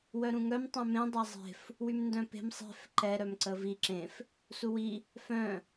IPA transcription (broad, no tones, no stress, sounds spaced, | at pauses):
w œ ɾ ũ ŋ œ m tˤ œ̃ m ẽ dˤ a zˤ e̤ f | w y m n d œ̃ p e̤ m sˤ e̤ f ǃ ɛ ɾ œ m ǀ ə v i ǁ ẽ f | s u w i | f œ̃